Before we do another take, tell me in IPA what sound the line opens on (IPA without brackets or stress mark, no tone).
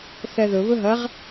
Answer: θ